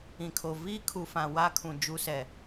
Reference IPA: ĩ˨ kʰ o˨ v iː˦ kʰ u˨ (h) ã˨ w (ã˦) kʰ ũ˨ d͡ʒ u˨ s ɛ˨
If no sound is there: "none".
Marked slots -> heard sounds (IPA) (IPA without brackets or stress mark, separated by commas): f, a˦